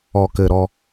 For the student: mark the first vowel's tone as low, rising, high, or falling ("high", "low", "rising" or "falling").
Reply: low